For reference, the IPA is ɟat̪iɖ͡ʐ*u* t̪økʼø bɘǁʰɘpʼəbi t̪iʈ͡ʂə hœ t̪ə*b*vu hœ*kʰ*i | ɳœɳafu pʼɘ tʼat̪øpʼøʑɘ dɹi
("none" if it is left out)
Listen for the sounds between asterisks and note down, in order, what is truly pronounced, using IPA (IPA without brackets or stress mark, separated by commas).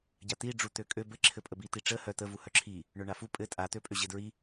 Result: u, none, ǁʰ